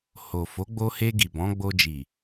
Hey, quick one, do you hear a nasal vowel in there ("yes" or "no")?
yes